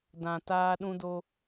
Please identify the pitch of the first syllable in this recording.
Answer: low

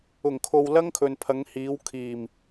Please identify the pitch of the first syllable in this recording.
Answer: low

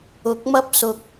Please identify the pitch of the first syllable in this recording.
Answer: rising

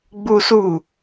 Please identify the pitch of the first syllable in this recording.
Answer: high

